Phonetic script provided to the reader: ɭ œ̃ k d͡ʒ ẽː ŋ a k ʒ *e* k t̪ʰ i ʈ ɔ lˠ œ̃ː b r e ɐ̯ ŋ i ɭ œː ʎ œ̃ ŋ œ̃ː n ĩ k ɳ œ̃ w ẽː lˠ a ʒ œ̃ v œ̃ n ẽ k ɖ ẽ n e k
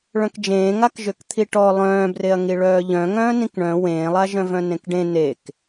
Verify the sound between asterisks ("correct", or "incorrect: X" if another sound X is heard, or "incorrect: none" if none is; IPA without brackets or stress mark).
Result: incorrect: ø